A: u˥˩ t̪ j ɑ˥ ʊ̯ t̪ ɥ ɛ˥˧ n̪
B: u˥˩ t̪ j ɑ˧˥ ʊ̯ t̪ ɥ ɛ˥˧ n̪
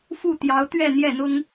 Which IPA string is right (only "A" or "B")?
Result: B